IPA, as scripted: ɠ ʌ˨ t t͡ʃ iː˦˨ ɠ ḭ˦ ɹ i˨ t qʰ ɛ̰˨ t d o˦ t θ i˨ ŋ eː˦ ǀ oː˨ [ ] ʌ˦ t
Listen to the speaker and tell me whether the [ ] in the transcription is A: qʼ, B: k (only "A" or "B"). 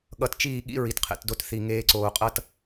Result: A